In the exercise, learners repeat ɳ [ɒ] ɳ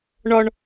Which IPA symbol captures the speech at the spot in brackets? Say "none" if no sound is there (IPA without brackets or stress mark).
ɒ